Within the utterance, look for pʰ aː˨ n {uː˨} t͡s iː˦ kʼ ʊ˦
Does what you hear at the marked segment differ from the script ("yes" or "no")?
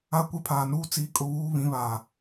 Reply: yes